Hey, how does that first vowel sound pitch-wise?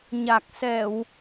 low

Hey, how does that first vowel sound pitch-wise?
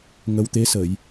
rising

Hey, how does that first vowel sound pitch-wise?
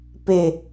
falling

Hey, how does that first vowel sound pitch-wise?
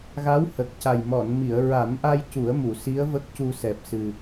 rising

